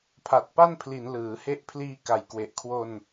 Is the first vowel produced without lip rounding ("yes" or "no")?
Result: yes